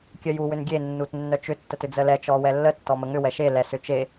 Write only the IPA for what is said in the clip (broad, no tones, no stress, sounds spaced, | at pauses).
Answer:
kʲ œ j u w ʏ n ɡʲ e nː u t nː œ t͡ʃ ʏ tː ə t ʏ d͡z ə l ɛ t͡ʃ ɔ w ɛ lː ə tː ɔ m ə ŋ ʏ w ɛ ʃ e l ɛ s ʏ t͡ʃ e